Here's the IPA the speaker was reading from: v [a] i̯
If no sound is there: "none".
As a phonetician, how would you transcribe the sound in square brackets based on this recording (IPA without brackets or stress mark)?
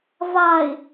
a